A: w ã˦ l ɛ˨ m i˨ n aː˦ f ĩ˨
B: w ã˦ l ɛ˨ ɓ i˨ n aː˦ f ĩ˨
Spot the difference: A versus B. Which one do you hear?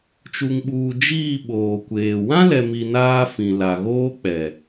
A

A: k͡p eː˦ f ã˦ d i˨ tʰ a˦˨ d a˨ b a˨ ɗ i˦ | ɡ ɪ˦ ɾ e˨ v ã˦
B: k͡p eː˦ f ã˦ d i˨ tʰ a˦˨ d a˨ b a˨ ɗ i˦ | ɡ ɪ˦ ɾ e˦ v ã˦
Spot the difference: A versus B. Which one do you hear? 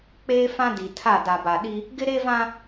B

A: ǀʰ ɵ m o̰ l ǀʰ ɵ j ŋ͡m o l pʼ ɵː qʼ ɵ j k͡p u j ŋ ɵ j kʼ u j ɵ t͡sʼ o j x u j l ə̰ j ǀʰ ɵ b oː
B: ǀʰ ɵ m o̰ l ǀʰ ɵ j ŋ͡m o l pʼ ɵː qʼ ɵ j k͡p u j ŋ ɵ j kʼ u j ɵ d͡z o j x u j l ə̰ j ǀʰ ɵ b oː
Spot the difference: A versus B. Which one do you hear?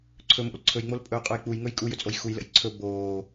A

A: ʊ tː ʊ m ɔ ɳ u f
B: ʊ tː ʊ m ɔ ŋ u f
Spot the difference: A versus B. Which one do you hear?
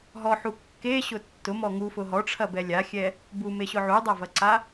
B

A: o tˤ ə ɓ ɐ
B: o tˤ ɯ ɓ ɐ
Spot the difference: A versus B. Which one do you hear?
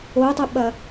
A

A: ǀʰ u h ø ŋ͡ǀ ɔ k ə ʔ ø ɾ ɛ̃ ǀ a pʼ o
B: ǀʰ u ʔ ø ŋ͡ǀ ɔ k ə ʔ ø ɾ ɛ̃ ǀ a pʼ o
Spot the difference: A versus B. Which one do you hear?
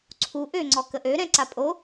B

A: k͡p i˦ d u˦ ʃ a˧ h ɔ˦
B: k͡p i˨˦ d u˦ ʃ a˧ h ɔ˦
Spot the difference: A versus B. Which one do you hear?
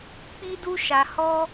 A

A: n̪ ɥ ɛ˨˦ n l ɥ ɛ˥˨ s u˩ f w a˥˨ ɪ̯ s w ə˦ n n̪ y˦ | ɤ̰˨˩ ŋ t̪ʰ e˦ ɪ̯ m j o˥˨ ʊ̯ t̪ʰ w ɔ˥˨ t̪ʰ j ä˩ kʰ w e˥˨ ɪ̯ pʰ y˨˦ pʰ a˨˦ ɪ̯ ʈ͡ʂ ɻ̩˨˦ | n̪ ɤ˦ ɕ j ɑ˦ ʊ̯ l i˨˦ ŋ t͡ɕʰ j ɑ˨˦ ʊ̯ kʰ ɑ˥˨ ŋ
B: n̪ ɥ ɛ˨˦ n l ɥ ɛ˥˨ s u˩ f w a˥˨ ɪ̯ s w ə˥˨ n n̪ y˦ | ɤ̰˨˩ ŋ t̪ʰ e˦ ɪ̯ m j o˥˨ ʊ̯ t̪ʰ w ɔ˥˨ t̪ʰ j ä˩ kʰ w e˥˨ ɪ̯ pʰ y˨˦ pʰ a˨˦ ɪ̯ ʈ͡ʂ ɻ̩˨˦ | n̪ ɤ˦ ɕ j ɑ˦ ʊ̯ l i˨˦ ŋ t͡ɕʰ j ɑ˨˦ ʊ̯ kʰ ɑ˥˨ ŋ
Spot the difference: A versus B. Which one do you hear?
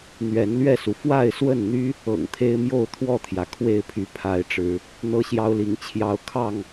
B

